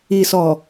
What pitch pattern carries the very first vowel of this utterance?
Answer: low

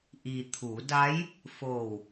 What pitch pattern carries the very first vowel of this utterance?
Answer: low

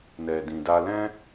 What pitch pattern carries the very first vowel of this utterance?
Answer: low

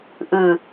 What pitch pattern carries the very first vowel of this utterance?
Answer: low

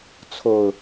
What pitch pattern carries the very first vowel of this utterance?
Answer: low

